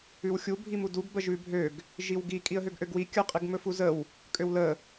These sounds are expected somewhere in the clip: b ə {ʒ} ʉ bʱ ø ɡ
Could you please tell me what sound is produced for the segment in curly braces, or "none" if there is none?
ʒ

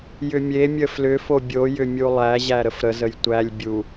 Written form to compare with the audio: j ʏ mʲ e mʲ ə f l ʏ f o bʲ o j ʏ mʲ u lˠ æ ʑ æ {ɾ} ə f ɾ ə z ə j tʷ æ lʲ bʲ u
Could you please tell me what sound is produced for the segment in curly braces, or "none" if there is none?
ɾ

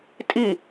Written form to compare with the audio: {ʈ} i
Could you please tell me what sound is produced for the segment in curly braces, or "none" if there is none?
tʼ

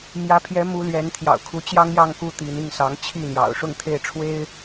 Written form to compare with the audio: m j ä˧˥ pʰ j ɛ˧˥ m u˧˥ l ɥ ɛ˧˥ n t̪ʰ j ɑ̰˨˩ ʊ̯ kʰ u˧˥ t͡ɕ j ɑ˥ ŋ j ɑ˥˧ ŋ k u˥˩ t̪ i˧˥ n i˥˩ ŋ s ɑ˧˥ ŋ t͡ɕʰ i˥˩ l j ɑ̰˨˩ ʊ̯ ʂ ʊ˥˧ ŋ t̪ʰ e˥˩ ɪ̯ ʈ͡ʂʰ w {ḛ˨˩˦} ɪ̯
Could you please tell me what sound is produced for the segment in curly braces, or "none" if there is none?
e˥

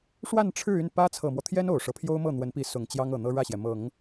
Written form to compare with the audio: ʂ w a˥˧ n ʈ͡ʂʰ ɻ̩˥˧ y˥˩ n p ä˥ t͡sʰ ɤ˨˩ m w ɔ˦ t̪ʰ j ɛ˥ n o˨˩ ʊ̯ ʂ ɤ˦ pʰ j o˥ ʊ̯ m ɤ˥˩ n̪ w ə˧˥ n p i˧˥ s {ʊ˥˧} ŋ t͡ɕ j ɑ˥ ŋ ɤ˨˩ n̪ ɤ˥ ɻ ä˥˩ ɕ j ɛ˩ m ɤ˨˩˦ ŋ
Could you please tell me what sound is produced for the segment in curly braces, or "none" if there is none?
ʊ˨˩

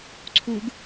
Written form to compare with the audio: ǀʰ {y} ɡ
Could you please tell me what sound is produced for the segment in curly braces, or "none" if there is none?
u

